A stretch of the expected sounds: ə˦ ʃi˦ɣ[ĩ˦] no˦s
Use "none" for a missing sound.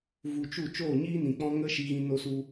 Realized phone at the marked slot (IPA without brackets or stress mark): ĩ˦